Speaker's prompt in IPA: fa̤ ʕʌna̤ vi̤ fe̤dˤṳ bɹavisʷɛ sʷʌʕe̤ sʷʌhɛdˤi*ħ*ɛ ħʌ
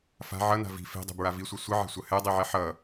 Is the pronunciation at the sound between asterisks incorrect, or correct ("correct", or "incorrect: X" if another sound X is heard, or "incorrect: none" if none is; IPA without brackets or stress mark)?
incorrect: ʕ